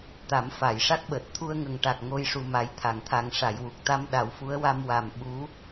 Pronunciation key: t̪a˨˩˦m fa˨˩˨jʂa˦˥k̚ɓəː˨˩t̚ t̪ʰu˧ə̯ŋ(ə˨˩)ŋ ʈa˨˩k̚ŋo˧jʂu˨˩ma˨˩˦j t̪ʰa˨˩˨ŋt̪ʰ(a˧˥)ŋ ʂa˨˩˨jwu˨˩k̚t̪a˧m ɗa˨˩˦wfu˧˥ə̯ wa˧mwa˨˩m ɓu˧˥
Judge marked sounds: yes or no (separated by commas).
yes, no